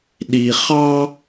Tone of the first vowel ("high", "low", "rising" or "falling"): low